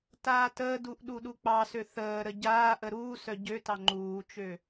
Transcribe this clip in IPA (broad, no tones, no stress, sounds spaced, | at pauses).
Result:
t aː t əː d u ʔ ɗ u ɗ u k͡p ɑ s ø θ əː ɾ ə ɟ aː ʔ ə ɾ uː s œ ɟ ø t ɑ ŋ͡ǃ uː t͡ʃ ø